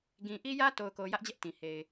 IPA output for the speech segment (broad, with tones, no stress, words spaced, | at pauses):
ɡĩ˨ ʔi˦jä˦to˨ʊ̯ko˨ jä˦ʔd͡ʑɛ˦ʔtĩ˨ he˨ɪ̯